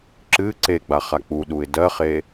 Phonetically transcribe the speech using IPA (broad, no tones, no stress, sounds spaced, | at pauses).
ǁ ɨ ǀ e ɡ͡b a χ a k͡p u ɗ u ɪ̯ d ɜ χ e